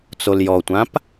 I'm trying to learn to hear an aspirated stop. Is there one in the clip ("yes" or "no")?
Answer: no